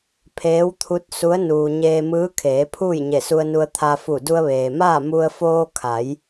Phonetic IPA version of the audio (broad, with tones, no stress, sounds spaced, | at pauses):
pʰ eː˧˥ w t̪ʰ u˧˥ t̚ s u˧˥ ə̯ n uː˧ ɲ eː˧ m ɯː˧˥ kʰ eː˩˧ pʰ uː˥˨ j ɲ e˧˩ s u˧ ə̯ n u˧ ə̯ t̪ʰ a˧ f u˧˩ d u˧ ə̯ ʋ eː˩ m aː˥˨ m u˧ ə̯ f oː˧ kʰ a˩˧ j